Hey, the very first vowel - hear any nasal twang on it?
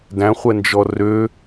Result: yes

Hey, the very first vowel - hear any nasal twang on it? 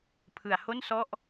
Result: no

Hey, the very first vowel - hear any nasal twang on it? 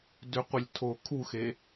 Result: no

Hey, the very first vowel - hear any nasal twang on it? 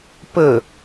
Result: no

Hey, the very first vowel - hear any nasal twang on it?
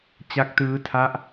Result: no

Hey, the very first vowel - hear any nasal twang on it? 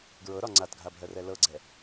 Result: no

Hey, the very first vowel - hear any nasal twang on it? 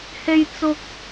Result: no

